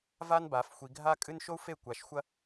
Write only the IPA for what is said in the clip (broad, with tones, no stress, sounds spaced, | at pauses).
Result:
v a˦ n b a˨˦ f xʷ i˧ ɡʱ a˦ kʼ ɨ˦ n ʃ o˦ u̯ f e˦˨ kʷ a˨˦ ʃ xʷ ɐ˦